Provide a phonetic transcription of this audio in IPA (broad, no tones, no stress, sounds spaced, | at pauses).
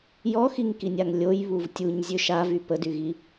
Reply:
j ɔ x i ŋ k i nʲ a ŋ lʲ o j β u v tʲ u ɲ zʲ ø ʃ a v y p ə d y ɣ i